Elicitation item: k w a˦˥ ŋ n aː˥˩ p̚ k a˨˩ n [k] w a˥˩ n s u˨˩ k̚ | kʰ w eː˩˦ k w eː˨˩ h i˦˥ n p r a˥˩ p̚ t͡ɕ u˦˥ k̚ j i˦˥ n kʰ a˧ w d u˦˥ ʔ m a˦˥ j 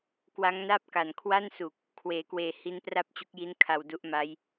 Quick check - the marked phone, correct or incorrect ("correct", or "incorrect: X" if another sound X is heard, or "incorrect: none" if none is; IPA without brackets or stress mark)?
incorrect: kʰ